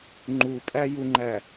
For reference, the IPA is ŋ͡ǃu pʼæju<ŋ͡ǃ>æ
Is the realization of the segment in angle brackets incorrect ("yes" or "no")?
no